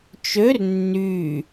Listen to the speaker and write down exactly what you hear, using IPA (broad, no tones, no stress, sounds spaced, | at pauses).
t͡ʃ ø r nː y